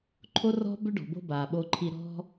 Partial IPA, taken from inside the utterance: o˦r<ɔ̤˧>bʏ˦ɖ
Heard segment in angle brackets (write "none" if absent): ɔ̤˦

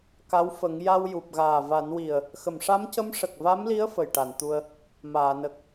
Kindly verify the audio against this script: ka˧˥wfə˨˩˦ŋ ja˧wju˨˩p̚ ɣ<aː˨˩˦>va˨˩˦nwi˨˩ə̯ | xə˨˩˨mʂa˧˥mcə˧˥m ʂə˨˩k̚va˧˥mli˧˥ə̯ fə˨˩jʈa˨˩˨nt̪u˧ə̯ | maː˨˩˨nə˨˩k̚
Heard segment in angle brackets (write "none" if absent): aː˨˩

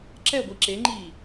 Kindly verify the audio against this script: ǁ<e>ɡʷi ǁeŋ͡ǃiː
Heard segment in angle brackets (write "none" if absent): ɛ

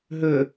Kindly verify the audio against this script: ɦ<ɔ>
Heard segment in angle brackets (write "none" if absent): ɵ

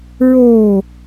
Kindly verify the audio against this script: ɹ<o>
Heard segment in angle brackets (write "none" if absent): oː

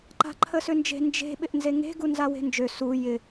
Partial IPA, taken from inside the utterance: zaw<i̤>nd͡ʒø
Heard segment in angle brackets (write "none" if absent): e̤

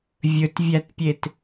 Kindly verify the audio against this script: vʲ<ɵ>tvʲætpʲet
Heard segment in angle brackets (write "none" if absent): ɵ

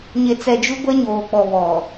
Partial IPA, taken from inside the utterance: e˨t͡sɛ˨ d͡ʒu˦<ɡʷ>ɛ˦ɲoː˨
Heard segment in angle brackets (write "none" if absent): ɡʷ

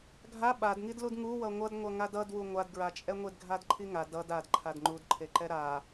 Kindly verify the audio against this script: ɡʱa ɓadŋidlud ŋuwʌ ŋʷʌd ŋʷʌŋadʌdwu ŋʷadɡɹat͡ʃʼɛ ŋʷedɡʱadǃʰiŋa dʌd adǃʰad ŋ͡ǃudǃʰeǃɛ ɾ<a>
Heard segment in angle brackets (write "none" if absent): a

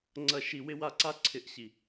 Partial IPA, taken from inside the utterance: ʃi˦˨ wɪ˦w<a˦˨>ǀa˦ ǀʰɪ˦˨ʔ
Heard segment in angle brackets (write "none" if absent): a˦˨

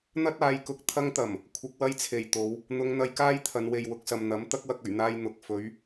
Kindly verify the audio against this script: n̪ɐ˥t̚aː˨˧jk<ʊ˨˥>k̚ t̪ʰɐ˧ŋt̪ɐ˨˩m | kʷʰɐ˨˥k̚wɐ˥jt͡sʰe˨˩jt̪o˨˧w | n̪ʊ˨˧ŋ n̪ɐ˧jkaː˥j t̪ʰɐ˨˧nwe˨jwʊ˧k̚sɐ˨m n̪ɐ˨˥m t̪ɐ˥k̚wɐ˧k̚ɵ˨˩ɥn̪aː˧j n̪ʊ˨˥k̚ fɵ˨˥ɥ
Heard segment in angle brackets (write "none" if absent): ʊ˨˥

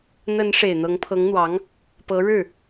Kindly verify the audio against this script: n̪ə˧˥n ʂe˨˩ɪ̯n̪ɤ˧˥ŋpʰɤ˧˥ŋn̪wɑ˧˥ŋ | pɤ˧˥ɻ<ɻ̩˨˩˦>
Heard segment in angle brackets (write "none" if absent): ɻ̩˥˩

